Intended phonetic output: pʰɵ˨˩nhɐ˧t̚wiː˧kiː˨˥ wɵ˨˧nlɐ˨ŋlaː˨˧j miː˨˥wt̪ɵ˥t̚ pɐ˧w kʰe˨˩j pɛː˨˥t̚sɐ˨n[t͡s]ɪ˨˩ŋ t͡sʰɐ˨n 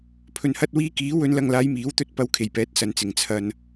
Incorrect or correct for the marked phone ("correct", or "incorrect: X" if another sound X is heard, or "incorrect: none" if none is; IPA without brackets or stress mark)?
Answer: correct